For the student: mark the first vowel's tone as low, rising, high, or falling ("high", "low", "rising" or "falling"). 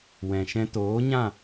low